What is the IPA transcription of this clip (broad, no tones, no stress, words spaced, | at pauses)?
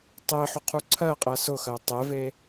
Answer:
tˤe ħʊqʰuǀʰɜqʼɜ sʊxɜ tˤɛve